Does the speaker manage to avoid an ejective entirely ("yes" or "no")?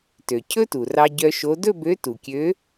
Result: yes